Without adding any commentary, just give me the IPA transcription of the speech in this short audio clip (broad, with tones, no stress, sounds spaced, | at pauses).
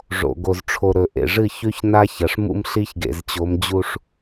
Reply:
ʐ o̰˨ ɡ o˨ z ʈ͡ʂʰ o˨ ɾ ɵ˨ ʔ ḛ˨ ʐ ɨ˦˨ ç ʉ˦ ç n a˦ ç ɐ˨ ʂ m ṵ˦ m ɬ i˦ ç ɡ ḛ˨ z t͡ɕ o˨˦ m d͡ʑ u˦ ʂ